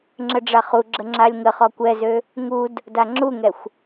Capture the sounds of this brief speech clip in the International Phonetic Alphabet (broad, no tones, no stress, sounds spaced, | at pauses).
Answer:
ŋ͡ǁ ə ɖ͡ʐ a χ u ɡ͡ǁ ə ŋ͡ǁ a lʲ ŋ ə χ ɔ kʷ ɛ z ø | ŋ u d | d a ŋ͡ǁ u ŋ ɛ xʷ